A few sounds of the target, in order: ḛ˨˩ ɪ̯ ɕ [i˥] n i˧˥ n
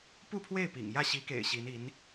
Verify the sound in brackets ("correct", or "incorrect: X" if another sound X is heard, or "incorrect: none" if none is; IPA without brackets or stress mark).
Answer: incorrect: i˧˥